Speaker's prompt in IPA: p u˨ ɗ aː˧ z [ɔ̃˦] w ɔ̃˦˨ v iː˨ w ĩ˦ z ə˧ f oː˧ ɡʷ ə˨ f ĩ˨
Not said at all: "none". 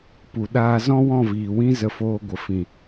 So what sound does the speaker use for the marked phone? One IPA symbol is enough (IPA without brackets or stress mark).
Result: ɔ̃˦